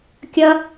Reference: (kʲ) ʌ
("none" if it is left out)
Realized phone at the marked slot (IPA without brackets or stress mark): kʲ